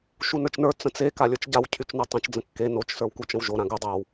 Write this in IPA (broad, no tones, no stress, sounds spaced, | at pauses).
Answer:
ʃ u n ə˞ t͡ʃ n ə˞ t͡s ə̃ t͡s e k a lʲ ə˞ t͡ʃ ɟ a w cʰ y t͡ʃ n u tˤ ə̃ t͡ʃ d͡z ə̃ kː e n o t͡ʃ s ə˞ w k u t͡ʃ ə̃ w ʒ o ɾ ã ɡ u dˤ a w